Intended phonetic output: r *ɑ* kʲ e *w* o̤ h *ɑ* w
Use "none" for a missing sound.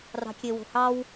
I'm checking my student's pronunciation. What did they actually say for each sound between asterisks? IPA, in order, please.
ɑ̤, w, ɑ

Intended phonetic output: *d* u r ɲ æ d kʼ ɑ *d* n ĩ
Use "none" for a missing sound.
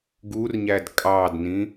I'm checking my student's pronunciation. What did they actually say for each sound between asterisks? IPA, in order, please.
ɡ, d

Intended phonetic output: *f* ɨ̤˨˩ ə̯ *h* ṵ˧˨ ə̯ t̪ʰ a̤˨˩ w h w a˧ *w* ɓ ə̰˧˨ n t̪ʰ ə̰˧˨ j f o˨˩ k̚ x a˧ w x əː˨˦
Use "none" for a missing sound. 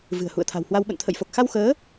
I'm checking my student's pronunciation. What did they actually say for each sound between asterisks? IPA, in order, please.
v, h, w

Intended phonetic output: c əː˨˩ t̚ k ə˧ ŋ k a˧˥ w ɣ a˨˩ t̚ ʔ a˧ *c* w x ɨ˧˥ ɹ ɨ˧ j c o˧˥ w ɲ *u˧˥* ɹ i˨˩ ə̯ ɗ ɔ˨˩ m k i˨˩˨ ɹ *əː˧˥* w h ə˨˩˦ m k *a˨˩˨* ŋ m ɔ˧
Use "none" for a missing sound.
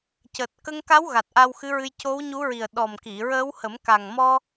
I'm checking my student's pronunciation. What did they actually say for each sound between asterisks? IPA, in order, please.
none, u˧˥, əː˧˥, a˨˩

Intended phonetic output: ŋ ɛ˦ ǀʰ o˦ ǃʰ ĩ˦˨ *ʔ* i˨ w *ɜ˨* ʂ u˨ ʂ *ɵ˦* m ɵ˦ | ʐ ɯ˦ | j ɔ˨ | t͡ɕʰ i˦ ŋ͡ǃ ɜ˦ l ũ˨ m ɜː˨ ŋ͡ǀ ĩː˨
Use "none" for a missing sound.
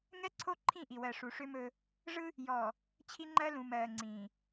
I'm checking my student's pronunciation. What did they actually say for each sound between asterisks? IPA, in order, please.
ʔ, ɜ˨, ø˦

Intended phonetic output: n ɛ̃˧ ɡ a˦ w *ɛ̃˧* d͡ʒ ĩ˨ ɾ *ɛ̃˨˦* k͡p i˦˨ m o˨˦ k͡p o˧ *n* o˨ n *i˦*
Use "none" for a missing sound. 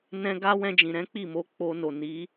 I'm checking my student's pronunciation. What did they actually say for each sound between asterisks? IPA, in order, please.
ɛ̃˧, ɛ̃˨˦, n, i˨˦

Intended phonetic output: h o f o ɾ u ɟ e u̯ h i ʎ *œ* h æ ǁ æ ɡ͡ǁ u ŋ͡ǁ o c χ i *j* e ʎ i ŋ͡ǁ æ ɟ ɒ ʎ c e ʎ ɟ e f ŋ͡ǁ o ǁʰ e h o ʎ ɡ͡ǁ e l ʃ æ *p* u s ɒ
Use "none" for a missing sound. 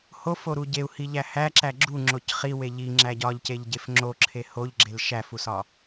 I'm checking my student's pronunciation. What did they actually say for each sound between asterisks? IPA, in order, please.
æ, w, f

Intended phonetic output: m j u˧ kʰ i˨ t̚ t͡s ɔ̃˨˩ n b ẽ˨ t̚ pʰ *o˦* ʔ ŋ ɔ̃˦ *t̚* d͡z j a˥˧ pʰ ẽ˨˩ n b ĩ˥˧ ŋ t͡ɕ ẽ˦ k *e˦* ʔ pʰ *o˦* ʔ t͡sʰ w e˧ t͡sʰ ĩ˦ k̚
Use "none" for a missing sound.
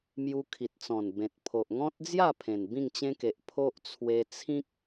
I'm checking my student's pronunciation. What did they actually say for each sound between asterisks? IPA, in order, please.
o˨, t̚, e˨, o˦

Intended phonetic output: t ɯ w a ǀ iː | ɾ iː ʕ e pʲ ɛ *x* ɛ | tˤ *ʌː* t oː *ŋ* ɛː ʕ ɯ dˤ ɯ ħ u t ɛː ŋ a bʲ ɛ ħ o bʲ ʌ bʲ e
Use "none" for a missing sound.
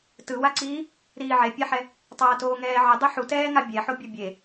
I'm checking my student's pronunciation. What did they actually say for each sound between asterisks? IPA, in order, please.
ħ, ʌː, ŋ

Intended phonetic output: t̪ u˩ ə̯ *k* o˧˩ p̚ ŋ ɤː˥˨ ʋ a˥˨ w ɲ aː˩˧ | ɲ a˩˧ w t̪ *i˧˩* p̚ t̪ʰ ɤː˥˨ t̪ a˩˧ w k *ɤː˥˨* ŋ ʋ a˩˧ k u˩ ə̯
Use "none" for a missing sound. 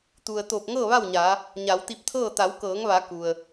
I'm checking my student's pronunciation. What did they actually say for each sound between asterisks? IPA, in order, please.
t̪, i˧, ɤː˩˧

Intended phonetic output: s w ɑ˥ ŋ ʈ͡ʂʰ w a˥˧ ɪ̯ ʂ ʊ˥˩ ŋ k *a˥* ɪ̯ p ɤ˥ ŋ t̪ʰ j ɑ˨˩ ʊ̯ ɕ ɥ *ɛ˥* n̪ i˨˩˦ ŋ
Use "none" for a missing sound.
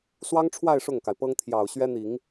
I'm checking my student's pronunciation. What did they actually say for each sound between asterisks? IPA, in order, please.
a˩, ɛ˥

